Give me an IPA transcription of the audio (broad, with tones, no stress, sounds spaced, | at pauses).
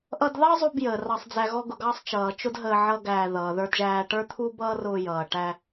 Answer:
ʔ ʌ˧ d ð ɑ˥ zˤ u˧ b j əː˩ r ɑ˧ sˤ d͡z æ˧ ɣ ɔ˥ ɡ ʊ˧ ɡ ɑ˥ sˤ t͡ʃ ʌː˩ t͡ʃ ʊ˥ d ɦ əː˧ ʕ ʌ˥ ɡ æː˧ ð ʌː˩ ð ə˞˧ d ʒ æː˧ ʈ ə˞˥ t̪ʰ u˥ b ʌː˥ r ʊː˧ j ʌː˩ ʈ æ˧